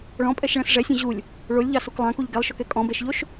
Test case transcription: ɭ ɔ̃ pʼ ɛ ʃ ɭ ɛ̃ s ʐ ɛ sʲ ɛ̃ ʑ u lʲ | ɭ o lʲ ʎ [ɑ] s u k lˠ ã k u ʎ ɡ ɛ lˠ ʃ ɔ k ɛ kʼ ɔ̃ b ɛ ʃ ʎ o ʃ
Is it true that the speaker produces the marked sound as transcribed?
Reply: yes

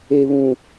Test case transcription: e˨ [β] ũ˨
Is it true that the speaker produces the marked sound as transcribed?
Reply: yes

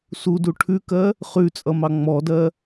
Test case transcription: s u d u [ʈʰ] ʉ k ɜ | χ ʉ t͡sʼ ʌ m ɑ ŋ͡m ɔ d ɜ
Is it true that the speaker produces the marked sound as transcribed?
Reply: yes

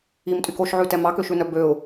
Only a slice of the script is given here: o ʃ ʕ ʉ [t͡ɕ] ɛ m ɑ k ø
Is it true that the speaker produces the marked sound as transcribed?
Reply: no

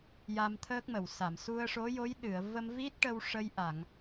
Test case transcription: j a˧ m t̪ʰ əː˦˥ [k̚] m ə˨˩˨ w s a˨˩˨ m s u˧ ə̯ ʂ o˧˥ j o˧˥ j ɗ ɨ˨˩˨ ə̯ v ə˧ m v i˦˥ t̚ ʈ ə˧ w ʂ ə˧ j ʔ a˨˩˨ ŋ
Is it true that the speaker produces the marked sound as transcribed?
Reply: yes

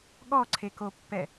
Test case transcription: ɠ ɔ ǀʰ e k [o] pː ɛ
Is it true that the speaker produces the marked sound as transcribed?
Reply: yes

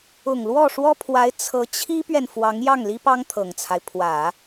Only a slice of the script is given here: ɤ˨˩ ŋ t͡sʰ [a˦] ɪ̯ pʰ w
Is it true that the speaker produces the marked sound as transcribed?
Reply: yes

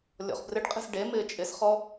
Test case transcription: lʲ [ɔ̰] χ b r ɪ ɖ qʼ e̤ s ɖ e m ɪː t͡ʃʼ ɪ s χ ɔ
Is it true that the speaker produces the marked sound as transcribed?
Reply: yes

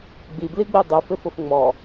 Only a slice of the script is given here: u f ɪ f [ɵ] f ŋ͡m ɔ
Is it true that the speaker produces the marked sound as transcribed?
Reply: no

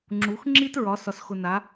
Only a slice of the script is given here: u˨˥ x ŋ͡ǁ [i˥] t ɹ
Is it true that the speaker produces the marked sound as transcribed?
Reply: yes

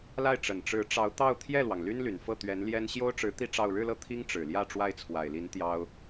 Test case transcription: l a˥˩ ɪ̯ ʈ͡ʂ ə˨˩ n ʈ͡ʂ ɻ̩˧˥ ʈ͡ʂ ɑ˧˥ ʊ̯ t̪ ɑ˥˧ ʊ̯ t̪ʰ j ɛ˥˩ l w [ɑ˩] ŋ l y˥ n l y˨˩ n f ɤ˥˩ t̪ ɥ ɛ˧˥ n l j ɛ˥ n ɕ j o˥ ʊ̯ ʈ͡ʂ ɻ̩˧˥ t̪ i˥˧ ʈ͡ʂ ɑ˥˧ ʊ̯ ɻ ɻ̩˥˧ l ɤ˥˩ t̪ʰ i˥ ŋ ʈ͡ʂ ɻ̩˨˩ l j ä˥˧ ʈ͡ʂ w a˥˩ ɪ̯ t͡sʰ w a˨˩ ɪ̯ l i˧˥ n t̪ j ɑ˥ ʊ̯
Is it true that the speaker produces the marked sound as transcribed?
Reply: yes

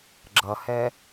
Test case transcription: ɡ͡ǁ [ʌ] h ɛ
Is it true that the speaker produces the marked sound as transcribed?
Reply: yes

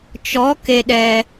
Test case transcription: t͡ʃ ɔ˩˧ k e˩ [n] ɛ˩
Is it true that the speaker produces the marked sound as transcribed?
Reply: no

